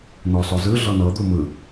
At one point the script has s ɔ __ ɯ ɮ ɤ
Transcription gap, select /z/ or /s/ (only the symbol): z